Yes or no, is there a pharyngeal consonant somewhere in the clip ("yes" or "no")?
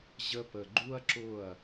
no